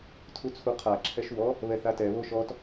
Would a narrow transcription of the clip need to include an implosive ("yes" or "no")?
no